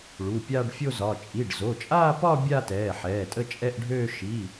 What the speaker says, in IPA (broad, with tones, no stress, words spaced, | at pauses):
ɭu˩˧˩pʲaː˥˧ɖfʲo˥˧zɒ˩˧˩ t͡ʃʼi˩˧˩ɖzo˩˧˩t͡ʃʼaː˥˧pɒ˥˧ bʲa˥˧tɛː˩˧˩ ħɛː˩˧˩tʼə˥˧t͡ʃʼɛ˥˧ʔɖʱøː˥˧ ʃi˩˧˩